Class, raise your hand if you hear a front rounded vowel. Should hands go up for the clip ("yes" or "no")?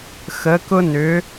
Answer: yes